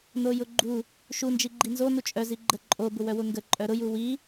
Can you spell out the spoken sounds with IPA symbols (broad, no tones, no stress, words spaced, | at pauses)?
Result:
nojʊɡ͡ǃu | ʃu nd͡ʒiɡ͡ǃinzo nut͡ʃʼœ ziɡ͡ǃə ǃʼo bʊwœwʊŋɡə ǃʼœɾʊ juwi